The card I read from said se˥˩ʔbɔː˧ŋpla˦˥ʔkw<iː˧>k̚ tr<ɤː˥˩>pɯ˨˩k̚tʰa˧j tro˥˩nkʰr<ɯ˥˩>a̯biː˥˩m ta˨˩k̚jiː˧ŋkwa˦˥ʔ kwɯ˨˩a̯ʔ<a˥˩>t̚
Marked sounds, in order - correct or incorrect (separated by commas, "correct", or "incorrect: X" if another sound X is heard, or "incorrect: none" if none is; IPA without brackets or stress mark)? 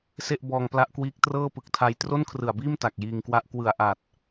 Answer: incorrect: iː˦˥, correct, incorrect: ɯ˨˩, incorrect: a˨˩